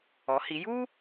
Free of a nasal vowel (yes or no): yes